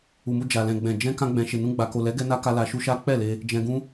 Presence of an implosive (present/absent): absent